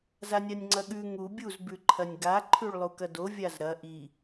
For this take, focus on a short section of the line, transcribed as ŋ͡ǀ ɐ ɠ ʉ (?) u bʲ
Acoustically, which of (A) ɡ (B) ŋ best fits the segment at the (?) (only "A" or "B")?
B